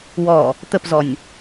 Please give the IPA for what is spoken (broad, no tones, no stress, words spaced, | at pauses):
wɔ | t̪əpzɔnʲ